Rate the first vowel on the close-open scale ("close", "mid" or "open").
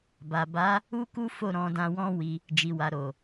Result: open